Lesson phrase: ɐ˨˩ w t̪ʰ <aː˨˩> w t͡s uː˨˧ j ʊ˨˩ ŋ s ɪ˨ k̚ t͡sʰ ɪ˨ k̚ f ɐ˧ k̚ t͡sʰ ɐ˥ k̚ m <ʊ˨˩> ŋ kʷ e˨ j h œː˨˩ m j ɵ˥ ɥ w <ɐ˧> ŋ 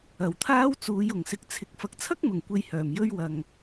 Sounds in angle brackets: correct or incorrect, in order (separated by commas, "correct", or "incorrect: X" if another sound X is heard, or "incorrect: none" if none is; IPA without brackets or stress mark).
incorrect: aː˥, correct, incorrect: ɐ˨